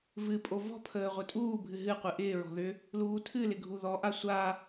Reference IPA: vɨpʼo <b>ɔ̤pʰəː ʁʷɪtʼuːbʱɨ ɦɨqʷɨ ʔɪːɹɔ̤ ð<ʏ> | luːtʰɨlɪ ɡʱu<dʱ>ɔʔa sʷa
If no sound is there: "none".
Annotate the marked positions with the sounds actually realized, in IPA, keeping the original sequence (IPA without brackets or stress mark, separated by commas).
v, ʏ, ð